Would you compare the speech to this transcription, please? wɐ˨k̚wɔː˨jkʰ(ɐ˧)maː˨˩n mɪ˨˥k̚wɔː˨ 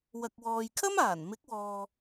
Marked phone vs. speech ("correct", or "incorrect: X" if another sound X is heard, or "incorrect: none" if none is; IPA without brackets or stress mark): incorrect: ɐ˥